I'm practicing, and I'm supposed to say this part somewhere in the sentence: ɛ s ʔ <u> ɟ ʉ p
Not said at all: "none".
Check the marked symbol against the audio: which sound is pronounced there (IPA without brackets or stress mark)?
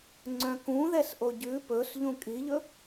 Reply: o